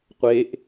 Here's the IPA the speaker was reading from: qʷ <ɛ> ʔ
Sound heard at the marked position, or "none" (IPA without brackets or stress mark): e